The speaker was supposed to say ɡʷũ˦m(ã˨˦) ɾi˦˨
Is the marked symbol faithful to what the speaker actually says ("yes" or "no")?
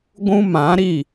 yes